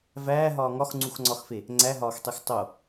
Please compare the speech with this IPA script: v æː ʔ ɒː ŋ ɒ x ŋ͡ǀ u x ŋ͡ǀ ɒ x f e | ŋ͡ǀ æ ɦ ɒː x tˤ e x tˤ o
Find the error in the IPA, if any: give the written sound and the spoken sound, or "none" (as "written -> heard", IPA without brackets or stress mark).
ʔ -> ɦ